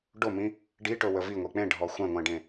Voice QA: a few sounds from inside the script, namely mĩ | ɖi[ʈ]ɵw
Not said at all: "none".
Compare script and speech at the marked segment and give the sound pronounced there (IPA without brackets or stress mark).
ʈ